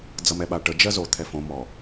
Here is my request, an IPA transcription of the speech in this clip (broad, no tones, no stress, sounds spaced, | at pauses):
d͡z ʌ m ɛ ɓ a ʈ ə d͡ʒ ɜ z o t̪ʰ ɛ f õ m ɔ